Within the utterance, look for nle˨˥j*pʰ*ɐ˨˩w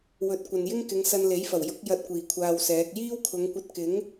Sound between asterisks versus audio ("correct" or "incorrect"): incorrect